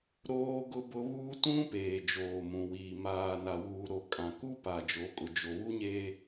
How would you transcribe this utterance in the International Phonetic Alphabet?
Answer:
ɾoː˦ɡʊ˦bʊ˦ βuː˦tũ˦ peː˨d͡ʒoː˨mũ˨wiː˨ maː˨ na˨wuː˨ ɾo˨ kʼã˨ku˦pa˨ d͡ʒo˨˦kʼʊ˨ d͡ʒo˨βu˦ɲeː˦

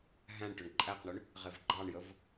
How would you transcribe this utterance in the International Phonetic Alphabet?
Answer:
ɦæ̃ɳʈɵɳ ǃʼæqɳɵɳ | ʁevɡ͡ǃɑɳjəv

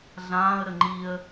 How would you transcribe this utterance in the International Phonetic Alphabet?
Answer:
ɮãːə̯ ɾəŋ͡ǃiə̯

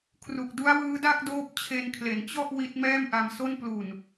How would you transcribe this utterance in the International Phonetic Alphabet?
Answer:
kʰru˨˩k̚du˦˥a̯wɯː˦˥da˥˩k̚ doː˦˥p̚t͡ɕʰe˧nkʰle˩˦n t͡ɕɔ˥˩ʔ wi˦˥t̚mɛː˥˩mʔa˧mso˥˩n plu˨˩n

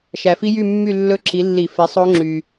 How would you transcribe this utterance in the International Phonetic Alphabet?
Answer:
ʃæ˨fi˦˥jy˥˧ mːy˥˧lːɵ˦˥ǁi˨˦ lːi˨˩˦fe˨˦ sˤo˦˥ŋ͡ǁy˨

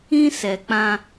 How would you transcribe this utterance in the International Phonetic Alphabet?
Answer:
ĩ˦sɛ˨k͡pã˦

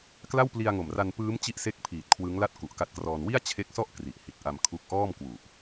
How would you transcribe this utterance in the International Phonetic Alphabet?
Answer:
kla˥˩wpli˧a̯ŋo˨˩mra˧n pɯː˦˥m t͡ɕi˥˩ʔse˥˩k̚pʰiː˨˩t̚kʰwɯ˦˥ŋ la˥˩t̚ku˨˩ʔka˦˥t̚krɔː˧n wi˥˩a̯t͡ɕʰe˦˥k̚sɔ˥˩ʔ kri˨˩ʔhi˨˩t̚ʔa˧mkʰu˦˥k̚ ʔɔː˥˩mkwu˨˩ʔ

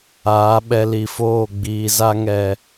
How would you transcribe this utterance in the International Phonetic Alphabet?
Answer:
aː˨˦ɓɛ˧li˨foː˦˨ ɡ͡biː˨za˧ŋɛ˨

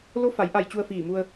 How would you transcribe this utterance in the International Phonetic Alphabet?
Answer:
lo˧˥fa˩˧jʔa˧˩j t͡ɕu˧ə̯fiː˧˩mu˧ə̯

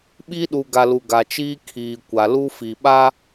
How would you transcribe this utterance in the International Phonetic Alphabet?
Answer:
ɓi˦ɗu˨ ɡa˨lu˨ ɡa˨t͡ʃiː˦ kʰiː˨kʷa˨ lu˦ fi˨ɓa˦

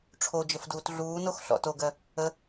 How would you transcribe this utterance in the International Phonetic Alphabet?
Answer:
ʈ͡ʂʰod͡ʒəfduːt ɮuːnox ɬɔ̰toɡɜ | ə

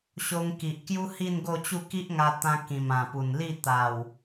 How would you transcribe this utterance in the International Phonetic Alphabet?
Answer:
ɕo˧ŋki˨ʔkju˦ hi˥˧nɡo˥˧t͡ɕu˥˧ ki˦ʔŋa˧t̪ã˧ kĩ˨˩mã˨˩pu˨˩n li˥˧ t̪a˨˩w

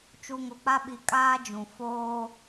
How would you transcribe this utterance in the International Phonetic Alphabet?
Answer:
t͡ʃu˨ŋo˨k͡pa˦ɓi˨ kʼaː˦d͡ʒũ˨ foː˦

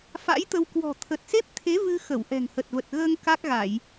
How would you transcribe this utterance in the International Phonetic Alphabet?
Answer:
fa̰˧˥jt̪ə˧w kwɔ̤˨˩ t̪ʰə˨˩t̚se˦˥p̚t̪ʰe˨˦ vɨ˧ xə˧˩wʔɛ̤˨˩ŋ hə˨˩t̚və˨˩t̚ɣəː˧ŋ ka˦˥k̚ɣa˧˩˨j

